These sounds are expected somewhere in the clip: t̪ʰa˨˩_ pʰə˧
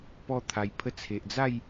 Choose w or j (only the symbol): j